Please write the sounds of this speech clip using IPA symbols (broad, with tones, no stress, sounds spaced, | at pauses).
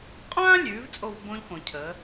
qʼ ãː˥ lʲ ʉː˩˧ v t͡sʼ o˥˧ v b õ˥ ʎ k õ˩˧ cʰ ə˩˧